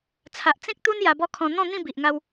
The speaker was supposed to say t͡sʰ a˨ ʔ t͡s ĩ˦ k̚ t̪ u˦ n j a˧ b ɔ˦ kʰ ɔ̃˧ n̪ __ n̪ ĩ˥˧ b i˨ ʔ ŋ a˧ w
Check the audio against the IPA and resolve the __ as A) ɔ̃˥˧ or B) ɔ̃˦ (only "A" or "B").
A